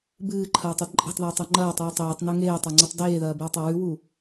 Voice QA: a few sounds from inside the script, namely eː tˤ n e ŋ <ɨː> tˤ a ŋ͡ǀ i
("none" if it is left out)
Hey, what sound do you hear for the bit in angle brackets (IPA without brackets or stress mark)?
eː